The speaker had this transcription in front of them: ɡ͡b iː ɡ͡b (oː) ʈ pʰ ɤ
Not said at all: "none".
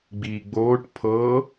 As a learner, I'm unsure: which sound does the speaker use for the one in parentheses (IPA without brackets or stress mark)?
oː